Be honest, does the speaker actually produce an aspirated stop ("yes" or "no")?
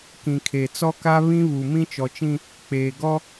yes